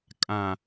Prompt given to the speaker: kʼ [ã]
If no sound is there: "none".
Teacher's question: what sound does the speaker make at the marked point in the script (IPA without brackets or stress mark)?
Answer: ã